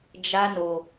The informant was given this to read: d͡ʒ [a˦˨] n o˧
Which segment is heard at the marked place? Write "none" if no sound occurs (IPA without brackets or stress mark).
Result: a˦